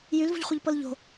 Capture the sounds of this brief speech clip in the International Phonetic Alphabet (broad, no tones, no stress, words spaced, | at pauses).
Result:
jylvṳʎχʷiʎpɤl ʎo̤